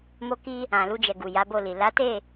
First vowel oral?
yes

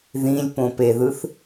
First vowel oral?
no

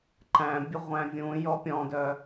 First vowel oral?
no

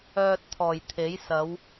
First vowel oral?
yes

